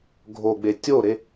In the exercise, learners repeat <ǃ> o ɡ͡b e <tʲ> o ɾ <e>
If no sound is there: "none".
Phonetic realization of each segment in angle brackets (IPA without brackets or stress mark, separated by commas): ɡʱ, tʲ, e